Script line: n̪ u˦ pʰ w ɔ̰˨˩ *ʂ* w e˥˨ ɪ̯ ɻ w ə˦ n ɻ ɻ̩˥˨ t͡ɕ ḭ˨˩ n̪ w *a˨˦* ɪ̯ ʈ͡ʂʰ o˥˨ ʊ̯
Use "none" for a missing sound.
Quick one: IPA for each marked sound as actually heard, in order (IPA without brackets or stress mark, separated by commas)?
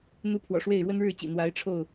ʂ, a˨˦